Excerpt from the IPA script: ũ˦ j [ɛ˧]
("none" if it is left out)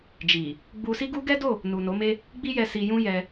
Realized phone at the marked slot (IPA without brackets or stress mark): ɛ˧